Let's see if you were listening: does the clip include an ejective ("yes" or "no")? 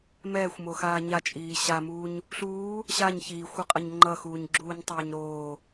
yes